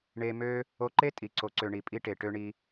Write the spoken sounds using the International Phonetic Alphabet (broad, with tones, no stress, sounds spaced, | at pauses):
ɳ e˧ m ø˦ | o˧ ǃ e˦ tʼ i˨ ǀ o˨ ǀ ø˨ ɳ i˨ pʼ i˦ ʈ e˨ ʈ ø˧ ɳ i˧